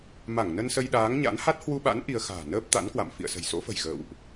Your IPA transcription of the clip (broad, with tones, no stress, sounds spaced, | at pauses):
m a˧˩ ŋ n ə˧ n s ə˧ j ɗ aː˨˦ ŋ ɲ a̰˧˥ n h a˦˥ t̚ h w u˧ ɓ a̰˧˥ n ʔ i˧ ə̯ x a̤ː˨˩ n əː˦˥ p̚ t̪ a̰˧˥ n k w a̰˧˨ m f ḭ˧˨ ə̯ s ə̤˨˩ j s o̰˧˥ f ə̤˨˩ j ɣ ə̰ː˧˨ w ʔ